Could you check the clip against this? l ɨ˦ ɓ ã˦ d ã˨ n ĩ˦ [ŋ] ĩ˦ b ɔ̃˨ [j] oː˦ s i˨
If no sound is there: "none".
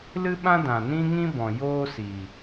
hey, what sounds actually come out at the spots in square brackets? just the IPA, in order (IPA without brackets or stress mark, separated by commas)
ŋ, j